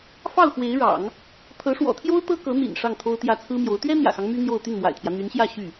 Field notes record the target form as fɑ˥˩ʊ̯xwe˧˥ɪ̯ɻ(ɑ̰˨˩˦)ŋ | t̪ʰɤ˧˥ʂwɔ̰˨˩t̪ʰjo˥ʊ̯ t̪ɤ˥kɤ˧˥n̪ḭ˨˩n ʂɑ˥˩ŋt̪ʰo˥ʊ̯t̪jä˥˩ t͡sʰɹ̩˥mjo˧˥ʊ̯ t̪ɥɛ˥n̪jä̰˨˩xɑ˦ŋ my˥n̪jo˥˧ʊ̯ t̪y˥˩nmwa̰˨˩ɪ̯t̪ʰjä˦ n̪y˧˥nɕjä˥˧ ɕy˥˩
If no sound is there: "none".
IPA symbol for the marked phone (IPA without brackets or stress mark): ɑ̰˨˩˦